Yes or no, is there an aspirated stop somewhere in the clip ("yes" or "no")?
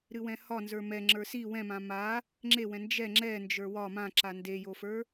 no